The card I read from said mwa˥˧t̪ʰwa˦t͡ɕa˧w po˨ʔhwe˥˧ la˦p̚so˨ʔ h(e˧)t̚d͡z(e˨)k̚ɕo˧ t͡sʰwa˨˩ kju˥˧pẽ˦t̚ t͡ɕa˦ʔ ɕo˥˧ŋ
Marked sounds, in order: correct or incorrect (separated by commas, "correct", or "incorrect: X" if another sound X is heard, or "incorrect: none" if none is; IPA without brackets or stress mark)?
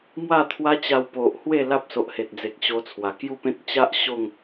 incorrect: e˨, correct